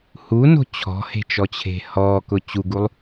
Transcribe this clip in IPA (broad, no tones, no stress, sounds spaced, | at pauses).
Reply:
h u n o̤ t͡ɕʰ ɔ̤ h e̤ t͡ʃ ɔ t͡ɕʰ e̤ h ɔː k ʊ t͡ɕ u ɡ u lˠ